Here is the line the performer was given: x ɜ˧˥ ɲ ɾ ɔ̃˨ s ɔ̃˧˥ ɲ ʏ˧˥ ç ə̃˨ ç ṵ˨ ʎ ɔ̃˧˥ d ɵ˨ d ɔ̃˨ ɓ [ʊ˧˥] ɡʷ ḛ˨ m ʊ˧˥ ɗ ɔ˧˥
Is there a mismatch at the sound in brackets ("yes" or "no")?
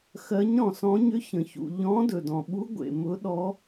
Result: yes